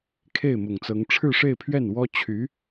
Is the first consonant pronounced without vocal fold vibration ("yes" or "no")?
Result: yes